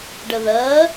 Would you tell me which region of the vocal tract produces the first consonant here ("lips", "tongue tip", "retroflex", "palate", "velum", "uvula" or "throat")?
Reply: retroflex